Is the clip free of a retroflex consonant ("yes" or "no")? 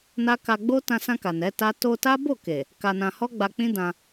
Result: yes